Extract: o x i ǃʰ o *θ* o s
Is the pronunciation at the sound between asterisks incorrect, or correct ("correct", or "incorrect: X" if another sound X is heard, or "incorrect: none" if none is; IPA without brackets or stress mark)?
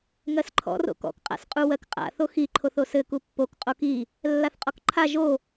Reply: correct